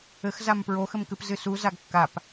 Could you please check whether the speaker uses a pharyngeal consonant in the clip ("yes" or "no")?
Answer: no